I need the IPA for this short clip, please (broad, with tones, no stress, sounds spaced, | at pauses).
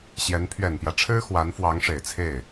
ɕ j ɛ˧˥ n pʰ ɥ ɛ˨˩ n p j ä˦ ʈ͡ʂʰ ɻ̩˥ x w a˧˥ n f w ɑ˧˥ ŋ ʂ e˨˩ ɪ̯ t͡sʰ e˥˩ ɪ̯